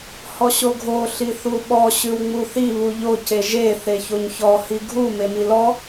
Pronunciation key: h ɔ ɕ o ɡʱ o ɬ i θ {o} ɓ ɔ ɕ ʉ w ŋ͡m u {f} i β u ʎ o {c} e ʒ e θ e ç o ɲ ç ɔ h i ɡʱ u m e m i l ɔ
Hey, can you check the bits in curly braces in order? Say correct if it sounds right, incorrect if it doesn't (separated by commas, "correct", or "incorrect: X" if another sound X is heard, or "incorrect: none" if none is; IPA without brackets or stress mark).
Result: incorrect: u, incorrect: θ, correct